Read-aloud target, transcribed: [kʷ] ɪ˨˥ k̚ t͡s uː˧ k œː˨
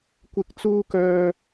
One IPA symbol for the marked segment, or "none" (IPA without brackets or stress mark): kʷ